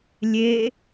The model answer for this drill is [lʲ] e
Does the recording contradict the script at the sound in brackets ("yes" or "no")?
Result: no